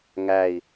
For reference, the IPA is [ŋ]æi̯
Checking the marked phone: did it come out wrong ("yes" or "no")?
no